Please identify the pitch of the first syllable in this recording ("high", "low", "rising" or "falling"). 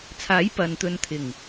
rising